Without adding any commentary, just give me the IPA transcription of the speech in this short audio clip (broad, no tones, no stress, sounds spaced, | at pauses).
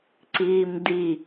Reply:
ǀ iː m d̪ i